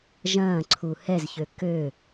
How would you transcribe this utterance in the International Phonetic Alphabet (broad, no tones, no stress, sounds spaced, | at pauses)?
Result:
ʒ ɐ̃ː ǀʰ u h ɛ z ç ø k ø